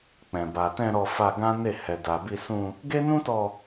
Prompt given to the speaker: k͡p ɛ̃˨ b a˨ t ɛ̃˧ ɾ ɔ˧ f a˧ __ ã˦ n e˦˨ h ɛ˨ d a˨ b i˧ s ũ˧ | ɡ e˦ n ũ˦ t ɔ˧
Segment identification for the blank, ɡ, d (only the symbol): ɡ